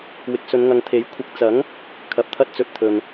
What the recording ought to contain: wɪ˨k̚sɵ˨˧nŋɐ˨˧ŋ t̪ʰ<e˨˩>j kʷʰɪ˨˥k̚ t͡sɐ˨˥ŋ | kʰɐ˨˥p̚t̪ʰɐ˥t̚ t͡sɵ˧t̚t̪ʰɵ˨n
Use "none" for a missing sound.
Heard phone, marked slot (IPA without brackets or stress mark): e˨˥